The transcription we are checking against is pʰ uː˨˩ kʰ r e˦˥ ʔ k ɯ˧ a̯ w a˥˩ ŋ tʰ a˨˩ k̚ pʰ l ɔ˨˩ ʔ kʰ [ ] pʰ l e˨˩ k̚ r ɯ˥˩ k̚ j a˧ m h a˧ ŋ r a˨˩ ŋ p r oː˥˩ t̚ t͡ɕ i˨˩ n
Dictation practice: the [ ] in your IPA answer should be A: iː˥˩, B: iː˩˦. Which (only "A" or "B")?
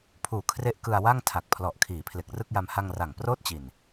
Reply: B